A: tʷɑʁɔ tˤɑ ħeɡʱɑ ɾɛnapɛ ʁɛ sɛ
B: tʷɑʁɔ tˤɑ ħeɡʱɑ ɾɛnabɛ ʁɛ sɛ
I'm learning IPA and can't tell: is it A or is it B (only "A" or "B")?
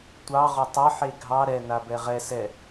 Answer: B